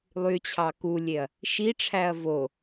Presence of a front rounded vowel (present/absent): present